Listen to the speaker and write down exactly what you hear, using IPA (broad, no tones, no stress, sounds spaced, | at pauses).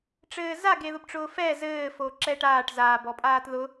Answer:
ʈ͡ʂ ɘː z a ɡ e ð ʊ b ʈ͡ʂ ʊː f ɛ z ɘː f o ǁ ɛ ʈ aː ʈ z aː b ɔ pʼ aː t ð ʊ